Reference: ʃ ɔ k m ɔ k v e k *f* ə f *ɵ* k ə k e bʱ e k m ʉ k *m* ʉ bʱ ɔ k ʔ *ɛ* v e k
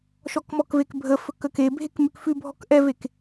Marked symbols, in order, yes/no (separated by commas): no, yes, no, yes